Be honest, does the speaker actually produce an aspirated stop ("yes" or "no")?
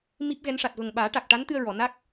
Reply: no